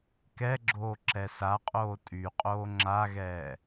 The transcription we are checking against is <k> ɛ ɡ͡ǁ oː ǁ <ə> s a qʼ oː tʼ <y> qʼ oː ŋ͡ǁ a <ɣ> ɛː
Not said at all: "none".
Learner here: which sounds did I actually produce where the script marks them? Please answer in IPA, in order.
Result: k, ɛ, y, ɣ

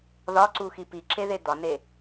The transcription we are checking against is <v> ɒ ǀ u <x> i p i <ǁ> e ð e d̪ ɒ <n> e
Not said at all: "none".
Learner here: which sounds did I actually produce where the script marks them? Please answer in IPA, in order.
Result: ð, x, ǁ, n

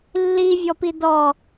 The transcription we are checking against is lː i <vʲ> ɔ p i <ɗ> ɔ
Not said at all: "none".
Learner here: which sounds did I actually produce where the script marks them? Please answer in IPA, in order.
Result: vʲ, d

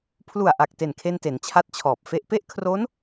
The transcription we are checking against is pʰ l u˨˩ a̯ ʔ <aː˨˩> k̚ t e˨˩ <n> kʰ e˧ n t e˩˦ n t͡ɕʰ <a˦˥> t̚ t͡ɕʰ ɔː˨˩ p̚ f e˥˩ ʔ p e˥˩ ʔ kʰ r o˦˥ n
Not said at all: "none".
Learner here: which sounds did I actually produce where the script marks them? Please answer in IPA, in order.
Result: a˨˩, n, a˦˥

